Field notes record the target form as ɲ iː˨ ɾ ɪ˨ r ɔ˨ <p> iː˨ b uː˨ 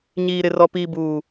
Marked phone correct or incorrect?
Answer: correct